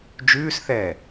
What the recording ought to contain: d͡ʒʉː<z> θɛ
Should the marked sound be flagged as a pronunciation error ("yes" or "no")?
yes